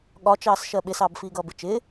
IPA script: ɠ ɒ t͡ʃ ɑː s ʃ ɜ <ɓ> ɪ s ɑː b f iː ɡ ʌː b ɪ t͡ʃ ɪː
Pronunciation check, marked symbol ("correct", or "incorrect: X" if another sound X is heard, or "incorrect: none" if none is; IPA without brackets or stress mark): correct